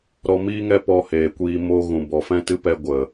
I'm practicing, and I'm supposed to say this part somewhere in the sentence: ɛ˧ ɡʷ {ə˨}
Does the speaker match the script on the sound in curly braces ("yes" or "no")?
yes